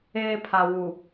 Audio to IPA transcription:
eː˦ pʰ a˨ w u˨

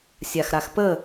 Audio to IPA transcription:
sʲ a x ɾ a x p ə

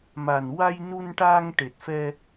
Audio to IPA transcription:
m a˨˩ n w a˧ j n u˧ n ʈ aː˧ ŋ ʈ e˨˩ t̚ f ɛ˧

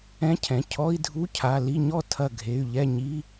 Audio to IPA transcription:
ɛ̃˧˥˧ cʰ ɛ̃˩˧˩ cʰ ɔ˧˥˧ i̯ dʱ u˧˥˧ cʰ a˩˧˩ l i˥˨ ɲ ɔ˥˨ tʰ ɐ˧˩ ɡʱ e˩˧˩ y̯ ʎ ɛ˥˨ ɲ i˧˥˧

